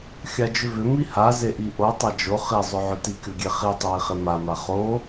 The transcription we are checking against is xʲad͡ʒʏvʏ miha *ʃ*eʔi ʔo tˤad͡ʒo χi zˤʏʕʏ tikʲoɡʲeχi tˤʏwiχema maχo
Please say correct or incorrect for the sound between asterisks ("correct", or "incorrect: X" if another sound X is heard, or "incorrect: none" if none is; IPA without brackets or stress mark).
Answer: incorrect: z